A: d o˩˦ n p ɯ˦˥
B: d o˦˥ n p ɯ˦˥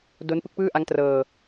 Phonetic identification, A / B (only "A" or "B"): B